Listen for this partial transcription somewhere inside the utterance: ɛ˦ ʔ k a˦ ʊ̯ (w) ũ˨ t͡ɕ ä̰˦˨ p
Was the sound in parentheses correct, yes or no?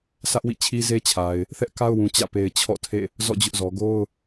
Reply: yes